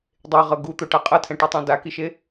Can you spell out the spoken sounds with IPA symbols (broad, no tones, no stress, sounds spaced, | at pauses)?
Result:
dˤ e ʁ ɤ ɡ u t̪ o ʈ a qʼ ɤ tʰ ɛ̃ ʈ i tˤ ã d a k i ʃ e